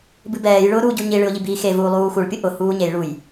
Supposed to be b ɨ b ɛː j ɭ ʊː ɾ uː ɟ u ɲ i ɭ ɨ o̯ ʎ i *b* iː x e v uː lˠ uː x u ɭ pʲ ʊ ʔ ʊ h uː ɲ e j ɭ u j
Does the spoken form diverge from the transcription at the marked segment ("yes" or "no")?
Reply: no